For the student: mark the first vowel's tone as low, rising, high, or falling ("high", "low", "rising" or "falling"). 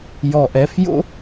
low